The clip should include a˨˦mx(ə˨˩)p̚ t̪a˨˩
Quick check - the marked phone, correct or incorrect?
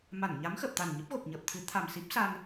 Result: correct